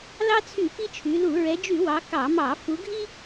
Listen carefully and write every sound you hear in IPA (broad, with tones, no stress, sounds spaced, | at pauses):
l ɑ˦ t͡sʰ y˧˩˧ p i˦ t͡ʃʰ y˩˧ l u˧˩˧ ɹ ɛ˩˧ d͡ʒ y˧˩˧ w ɑ˩˧ k ɑ˧˩˧ m ɑ˧˩˧ f u˩˧ ɡʱ i˦